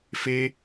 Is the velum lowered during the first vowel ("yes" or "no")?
no